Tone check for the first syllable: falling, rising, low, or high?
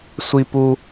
high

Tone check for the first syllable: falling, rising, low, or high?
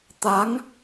rising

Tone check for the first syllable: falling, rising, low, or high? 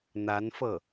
rising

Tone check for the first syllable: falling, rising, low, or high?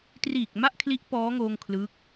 low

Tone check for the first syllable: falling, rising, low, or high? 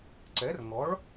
rising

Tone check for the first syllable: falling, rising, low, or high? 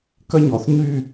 high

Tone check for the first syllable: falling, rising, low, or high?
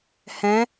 rising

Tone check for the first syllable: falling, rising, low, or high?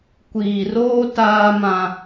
low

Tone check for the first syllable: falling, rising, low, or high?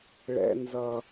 low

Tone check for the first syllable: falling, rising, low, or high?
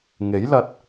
rising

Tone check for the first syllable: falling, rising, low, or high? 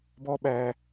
high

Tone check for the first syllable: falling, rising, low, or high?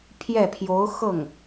falling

